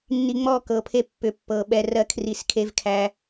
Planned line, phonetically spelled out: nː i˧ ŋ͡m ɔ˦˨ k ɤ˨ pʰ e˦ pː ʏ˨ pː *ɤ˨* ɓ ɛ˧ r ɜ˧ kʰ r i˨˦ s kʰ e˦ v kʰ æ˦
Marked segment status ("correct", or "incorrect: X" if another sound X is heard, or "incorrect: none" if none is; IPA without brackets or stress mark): correct